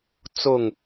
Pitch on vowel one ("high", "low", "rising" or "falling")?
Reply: falling